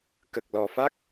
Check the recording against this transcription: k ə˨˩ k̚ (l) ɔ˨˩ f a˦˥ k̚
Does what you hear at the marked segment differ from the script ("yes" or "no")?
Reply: no